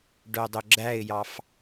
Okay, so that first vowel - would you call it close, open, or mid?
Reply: mid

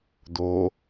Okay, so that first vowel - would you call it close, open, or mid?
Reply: mid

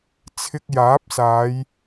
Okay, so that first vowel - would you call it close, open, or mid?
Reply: close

